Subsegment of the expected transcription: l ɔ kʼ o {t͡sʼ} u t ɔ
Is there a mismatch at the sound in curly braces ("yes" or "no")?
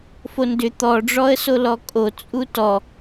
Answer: no